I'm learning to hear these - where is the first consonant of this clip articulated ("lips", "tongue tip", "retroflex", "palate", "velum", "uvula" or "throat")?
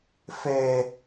lips